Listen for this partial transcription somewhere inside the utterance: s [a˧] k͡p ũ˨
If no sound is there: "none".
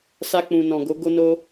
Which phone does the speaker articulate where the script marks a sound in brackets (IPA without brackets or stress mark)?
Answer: a˧